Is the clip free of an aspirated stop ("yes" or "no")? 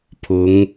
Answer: no